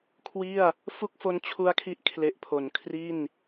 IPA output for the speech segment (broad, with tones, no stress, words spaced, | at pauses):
kʰwi˥˩a̯ | fu˥˩k̚fo˦˥nt͡ɕʰu˧a̯kʰi˦˥ʔ kʰle˨˩ʔpʰo˩˦n kʰri˥˩n